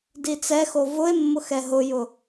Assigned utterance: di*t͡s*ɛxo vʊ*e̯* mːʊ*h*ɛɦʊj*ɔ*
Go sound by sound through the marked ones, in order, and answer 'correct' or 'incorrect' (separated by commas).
correct, correct, incorrect, incorrect